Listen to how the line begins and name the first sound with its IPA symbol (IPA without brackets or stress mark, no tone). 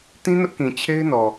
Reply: t